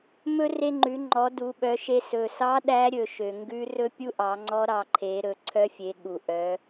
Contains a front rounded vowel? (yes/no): yes